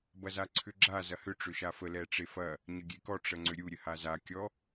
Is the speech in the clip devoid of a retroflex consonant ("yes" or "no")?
no